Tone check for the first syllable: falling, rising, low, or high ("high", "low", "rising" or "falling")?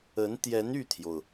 rising